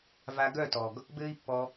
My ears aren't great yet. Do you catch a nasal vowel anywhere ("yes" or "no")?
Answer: no